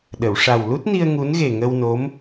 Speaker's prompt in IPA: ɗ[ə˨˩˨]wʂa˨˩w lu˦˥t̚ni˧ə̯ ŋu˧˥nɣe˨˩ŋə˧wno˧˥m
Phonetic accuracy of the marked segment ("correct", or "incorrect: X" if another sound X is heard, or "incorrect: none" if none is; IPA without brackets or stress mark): correct